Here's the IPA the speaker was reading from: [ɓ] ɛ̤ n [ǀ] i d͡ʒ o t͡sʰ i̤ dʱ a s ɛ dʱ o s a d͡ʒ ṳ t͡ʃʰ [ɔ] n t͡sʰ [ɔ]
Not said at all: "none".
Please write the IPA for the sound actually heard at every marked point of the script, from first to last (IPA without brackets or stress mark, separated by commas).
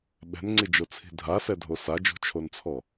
ɓ, ŋ͡ǀ, o, ɔ